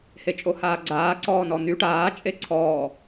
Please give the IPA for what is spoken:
h e t͡ʃʼ o h aː ɡ͡ǀ aː ǀ ɔː n ɔ n̪ y ʈ aː t͡ʃʼ e ǀʰ ɔː

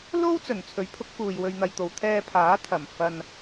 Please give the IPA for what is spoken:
l o˥ w t͡s ɵ˨˩ n t͡sʰ ɵ˨˥ ɥ pʰ ʊ˨˥ k̚ f uː˨ j w ɵ˧ ɥ n̪ ɐ˧ j t̪ o˨˧ w t̪ʰ ɛː˧ pʰ aː˨˥ t̪ʰ ɐ˨˩ m f ɐ˧ n

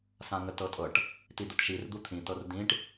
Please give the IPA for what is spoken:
s ã ŋ ə t ɤ tʼ ɤ ʈ | t i d̪ ə t ʃ i r d̪ u t̪ʰ ĩ t ɤ r d ĩ ʈ

